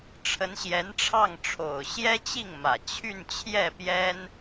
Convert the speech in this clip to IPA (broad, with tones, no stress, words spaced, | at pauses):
ʈ͡ʂʰə˧˥nɕjɛ˧˥nʈ͡ʂʰɑ˥˩ŋ ʈ͡ʂʰo˨˩ʊ̯ɕjɛ˥t͡ɕi˥˩ŋmä˨˩ t͡ɕʰy˥˧nt͡ɕʰjɛ˥˩pjɛ˥n